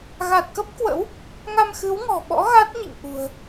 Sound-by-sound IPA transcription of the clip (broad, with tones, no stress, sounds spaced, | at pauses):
ɣ a˨˩ t̚ k ə˦˥ p̚ k w ə̰˧˥ w | ŋ a˧ m x ɨ˨˦ w ŋ ɔ̤˨˩ ɓ ɔ̰˧˥ ɣ a˦˥ t̚ ɲ ḭ˧˨ ŋ ʔ ṳ˨˩ ə̯